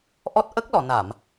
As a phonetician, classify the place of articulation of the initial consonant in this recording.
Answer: glottal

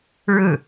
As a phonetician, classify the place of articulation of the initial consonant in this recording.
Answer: retroflex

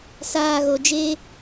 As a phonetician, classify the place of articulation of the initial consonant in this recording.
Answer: alveolar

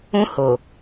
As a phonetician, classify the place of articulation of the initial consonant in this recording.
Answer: glottal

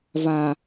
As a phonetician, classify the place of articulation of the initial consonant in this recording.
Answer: labial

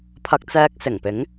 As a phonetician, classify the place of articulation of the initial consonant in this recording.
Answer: labial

